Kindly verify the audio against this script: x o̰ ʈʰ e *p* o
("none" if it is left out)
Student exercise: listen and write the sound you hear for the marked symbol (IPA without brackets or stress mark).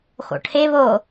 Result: β